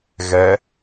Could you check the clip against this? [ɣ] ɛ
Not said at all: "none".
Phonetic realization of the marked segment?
ɣ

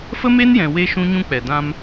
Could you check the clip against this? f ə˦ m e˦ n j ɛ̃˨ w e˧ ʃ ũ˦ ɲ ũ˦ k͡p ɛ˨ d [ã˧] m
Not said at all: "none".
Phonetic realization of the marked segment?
ã˧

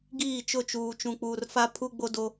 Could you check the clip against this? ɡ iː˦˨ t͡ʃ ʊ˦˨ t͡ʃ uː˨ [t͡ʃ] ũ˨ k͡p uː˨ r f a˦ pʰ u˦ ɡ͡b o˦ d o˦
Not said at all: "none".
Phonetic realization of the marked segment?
t͡ʃ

